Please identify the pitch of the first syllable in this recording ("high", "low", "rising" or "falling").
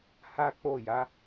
high